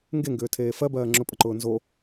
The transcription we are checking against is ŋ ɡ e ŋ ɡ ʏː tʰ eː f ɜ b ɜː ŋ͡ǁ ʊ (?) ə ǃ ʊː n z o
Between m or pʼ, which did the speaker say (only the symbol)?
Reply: pʼ